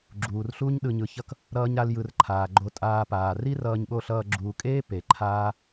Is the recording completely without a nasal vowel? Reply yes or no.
yes